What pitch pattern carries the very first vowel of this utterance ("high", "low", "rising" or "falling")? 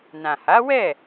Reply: low